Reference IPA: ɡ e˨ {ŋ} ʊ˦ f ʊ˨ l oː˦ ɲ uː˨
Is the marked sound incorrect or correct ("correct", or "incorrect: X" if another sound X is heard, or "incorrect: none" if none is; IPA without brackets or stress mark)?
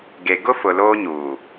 incorrect: ɡ